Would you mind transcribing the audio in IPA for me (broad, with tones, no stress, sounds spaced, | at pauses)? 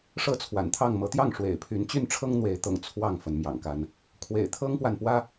ʂ ɤ˦ t͡sʰ w a̰˨˩ n t̪ʰ ɑ˥˨ ŋ m ɤ˨˦ t̪ j ɑ˥˨ ŋ ʂ w ḛ˨˩ ɪ̯ pʰ y˨˦ n t͡ɕ y˥˨ n ʈ͡ʂʰ ɤ˦ ŋ n̪ w e˨˦ ɪ̯ t̪ ɤ̰˨˩ ŋ t͡sʰ w ɑ˥˨ ŋ f ə˨˦ n m j ɑ̰˨˩ ŋ k a˦ n | kʰ w ḛ˨˩ ɪ̯ t̪ʰ ɤ˦ ŋ p w a˨ n p w ä˦